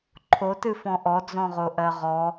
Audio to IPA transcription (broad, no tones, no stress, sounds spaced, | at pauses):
ǃʰ o t ɨ f ɔ̃ ʔ ɔ d͡z ɔ̃ ʁ o ʔ ɜ ʁ ɔ